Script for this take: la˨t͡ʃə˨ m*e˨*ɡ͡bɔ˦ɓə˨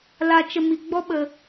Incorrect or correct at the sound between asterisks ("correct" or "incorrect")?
incorrect